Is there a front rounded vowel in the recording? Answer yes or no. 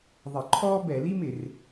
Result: no